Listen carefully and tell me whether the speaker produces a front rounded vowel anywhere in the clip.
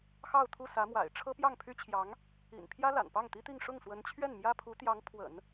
yes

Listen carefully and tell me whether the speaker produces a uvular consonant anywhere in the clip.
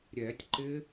no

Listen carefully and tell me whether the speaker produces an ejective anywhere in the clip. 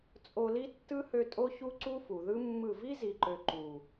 yes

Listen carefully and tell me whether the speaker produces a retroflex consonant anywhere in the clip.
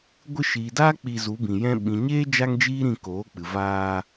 no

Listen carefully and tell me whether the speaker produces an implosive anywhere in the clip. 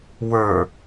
no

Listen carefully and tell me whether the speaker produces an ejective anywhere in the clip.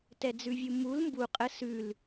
yes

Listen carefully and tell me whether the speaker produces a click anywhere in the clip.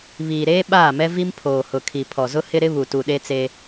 no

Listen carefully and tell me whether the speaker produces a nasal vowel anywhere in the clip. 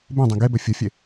yes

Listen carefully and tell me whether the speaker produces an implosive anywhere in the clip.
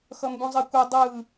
no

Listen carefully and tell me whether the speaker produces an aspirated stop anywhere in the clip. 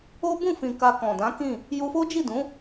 no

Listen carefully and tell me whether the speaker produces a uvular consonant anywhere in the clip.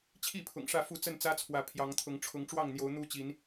no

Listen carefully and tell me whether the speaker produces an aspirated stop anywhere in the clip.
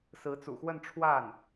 yes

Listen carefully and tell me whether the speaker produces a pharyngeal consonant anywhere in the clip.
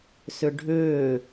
no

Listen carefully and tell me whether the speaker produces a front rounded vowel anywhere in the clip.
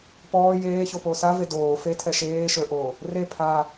no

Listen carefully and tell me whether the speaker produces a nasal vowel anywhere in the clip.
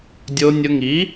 no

